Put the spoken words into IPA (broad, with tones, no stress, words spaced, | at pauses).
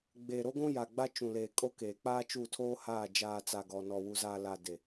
ɡ͡beː˨ɾo˦ɡʷũ˦ja˨ ɡ͡ba˦t͡ʃũ˨leː˨kʼo˦ keː˨k͡paː˦ t͡ʃu˦˨tʰoː˦haː˦˨ d͡ʒaː˨t͡sa˨ ɡɔ˨nɔ˨ wu˨zaː˨la˨ de˨